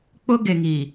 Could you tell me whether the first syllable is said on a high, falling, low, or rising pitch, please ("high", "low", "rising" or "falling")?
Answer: high